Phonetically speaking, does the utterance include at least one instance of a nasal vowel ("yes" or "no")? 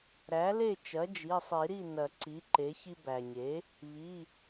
no